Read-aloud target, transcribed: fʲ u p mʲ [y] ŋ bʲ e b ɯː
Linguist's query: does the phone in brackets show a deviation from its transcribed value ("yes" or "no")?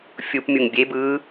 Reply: yes